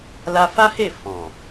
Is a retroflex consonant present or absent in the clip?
absent